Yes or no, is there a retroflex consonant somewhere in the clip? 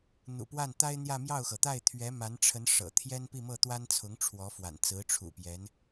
yes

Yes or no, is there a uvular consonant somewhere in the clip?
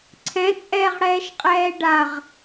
yes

